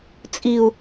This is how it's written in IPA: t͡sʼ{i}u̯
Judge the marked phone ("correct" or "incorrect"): correct